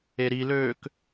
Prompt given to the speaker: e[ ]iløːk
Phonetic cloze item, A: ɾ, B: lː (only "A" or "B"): A